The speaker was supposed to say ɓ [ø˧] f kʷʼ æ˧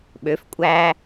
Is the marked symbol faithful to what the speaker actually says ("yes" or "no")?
no